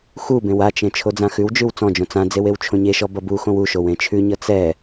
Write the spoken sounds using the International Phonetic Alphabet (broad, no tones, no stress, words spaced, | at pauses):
xubẽw at͡ʃẽ t͡ʃʰod͡zãxʉwd͡ʒʉw t͡sɔ̃d͡ʒõ t͡sãd͡zew ewt͡ʃʰõɲeʃɔ bʌbuxõw uʃow ẽt͡ʃʰʉɲʌ t͡sɛ